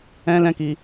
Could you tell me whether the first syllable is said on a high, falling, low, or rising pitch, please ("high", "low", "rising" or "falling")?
high